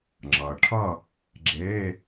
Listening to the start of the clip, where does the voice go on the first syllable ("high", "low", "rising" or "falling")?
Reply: low